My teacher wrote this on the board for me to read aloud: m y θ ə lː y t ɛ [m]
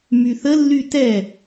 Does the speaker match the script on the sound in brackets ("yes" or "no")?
no